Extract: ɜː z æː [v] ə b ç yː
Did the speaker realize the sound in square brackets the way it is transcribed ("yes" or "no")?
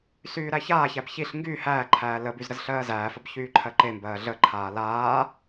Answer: no